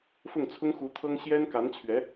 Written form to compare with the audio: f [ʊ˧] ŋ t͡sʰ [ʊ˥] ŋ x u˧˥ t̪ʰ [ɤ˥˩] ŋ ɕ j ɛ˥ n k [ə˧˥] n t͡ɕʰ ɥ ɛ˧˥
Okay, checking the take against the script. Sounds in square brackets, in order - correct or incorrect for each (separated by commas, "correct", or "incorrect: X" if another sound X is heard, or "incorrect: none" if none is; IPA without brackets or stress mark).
incorrect: ʊ˥˩, correct, incorrect: ɤ˥, incorrect: a˧˥